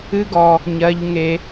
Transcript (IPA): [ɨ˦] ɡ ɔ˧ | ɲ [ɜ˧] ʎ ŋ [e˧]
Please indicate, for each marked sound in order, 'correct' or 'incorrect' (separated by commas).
correct, correct, correct